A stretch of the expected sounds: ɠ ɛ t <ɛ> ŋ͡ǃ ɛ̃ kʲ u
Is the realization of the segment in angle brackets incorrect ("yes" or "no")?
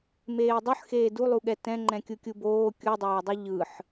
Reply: yes